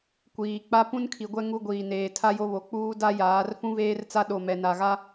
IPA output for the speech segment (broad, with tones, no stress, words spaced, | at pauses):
kʷiː˨k͡pa˦ pũ˦nkʰi˨ɡʷɛ˦ ŋu˦ɡʷiː˨neː˨ tʰa˦jo˦βo˨ k͡puː˦da˦jaː˨˦r fũ˦veː˦rt͡sa˦ ɗo˨mɛ˨ na˨ɣa˦